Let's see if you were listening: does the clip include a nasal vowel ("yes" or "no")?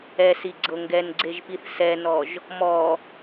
no